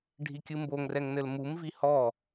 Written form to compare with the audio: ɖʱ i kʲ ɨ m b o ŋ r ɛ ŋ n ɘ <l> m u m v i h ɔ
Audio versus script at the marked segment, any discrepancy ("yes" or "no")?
no